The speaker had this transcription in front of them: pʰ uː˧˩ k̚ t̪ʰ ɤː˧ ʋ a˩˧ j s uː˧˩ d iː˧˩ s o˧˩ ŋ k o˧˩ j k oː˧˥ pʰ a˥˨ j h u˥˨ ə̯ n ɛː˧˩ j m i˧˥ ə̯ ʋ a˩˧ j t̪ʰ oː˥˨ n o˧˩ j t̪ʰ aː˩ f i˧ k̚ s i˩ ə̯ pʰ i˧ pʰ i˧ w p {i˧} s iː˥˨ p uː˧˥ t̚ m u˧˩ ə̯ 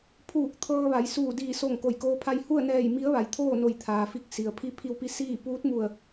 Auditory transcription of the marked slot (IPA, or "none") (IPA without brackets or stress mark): i˧